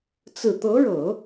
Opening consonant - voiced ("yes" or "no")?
no